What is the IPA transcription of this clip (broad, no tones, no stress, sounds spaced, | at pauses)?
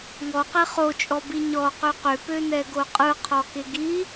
ŋ ɔ q e χ o t͡ʃʼ ɔ b i ɲ ɔ q ø q ø p ø n ɛ ɡ o qʼ ɯ qʰ ɔ k e ɡ i